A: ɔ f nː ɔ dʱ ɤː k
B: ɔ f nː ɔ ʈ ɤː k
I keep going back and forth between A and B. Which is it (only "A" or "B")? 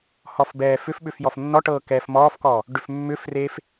B